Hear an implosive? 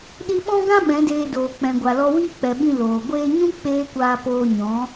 yes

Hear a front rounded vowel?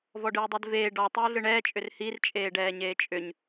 yes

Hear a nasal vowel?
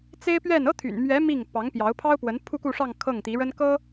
no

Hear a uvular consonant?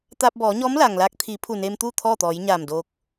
no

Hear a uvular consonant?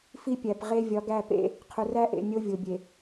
yes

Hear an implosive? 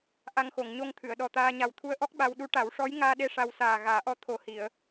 yes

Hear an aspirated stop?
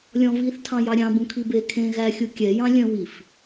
yes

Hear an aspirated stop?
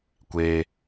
no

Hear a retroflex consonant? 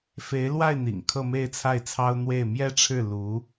yes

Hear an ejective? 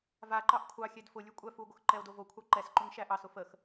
yes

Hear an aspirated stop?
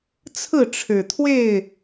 yes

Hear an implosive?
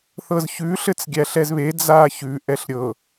no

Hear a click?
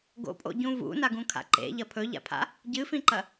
yes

